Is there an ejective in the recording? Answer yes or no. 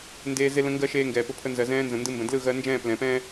no